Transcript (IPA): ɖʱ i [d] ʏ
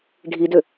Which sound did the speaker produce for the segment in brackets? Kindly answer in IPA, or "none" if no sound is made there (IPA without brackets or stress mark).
d